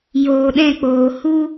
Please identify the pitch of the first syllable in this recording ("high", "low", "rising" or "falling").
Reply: low